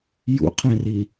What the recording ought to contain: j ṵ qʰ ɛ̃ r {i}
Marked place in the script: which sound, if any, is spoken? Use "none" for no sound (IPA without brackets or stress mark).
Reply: i